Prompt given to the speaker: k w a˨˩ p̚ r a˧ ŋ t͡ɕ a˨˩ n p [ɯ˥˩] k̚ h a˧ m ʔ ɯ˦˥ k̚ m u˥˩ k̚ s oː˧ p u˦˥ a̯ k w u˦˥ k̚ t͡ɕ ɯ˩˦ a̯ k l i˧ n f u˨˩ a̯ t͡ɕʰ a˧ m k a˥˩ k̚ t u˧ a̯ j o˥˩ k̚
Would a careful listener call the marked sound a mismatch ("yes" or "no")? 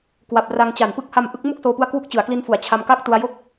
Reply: yes